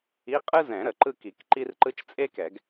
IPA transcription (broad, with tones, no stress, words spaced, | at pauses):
i˧˥˧qʼɯ˥zɛ̃˨˩˦ ɾə˩ ǃɯ˥˧ki˨˩˦kǃi˥rǃɯ˥t͡ʃ t͡sʼe˥kɛ˨˩˦ɡ